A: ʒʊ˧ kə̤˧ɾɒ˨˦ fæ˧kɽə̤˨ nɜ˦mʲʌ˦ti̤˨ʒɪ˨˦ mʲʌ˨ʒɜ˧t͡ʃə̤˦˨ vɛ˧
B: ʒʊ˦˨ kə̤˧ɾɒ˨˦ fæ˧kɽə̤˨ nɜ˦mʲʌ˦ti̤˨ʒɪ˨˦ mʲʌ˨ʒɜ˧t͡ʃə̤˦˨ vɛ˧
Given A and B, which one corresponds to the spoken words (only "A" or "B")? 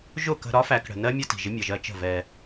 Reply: B